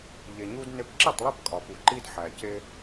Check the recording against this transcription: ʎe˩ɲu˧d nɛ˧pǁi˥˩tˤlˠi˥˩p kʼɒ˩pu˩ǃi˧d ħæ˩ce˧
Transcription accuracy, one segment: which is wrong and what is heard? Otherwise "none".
ɛ˧ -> e˧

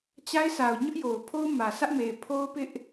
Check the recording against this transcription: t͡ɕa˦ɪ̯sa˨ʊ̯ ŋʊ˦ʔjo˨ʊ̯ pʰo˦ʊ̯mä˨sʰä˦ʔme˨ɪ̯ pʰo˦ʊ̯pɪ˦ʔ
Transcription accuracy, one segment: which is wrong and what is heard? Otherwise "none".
ŋ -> ɲ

